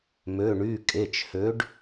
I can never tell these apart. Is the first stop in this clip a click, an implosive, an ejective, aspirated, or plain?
ejective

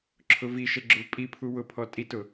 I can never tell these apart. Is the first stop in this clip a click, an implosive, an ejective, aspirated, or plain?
click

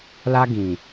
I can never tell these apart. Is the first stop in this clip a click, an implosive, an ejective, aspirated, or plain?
plain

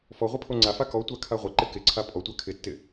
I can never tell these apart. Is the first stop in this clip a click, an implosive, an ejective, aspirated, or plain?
aspirated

